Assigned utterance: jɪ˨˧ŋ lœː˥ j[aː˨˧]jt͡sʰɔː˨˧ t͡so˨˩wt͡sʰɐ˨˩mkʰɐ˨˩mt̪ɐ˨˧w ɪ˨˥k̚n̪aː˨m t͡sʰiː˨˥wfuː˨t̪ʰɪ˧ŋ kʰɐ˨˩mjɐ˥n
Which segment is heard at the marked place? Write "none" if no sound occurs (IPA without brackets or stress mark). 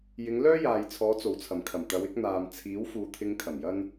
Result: aː˨